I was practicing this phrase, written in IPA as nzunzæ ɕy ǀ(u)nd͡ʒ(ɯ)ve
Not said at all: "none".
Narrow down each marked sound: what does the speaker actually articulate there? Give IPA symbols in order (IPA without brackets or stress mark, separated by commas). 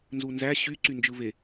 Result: y, ɯ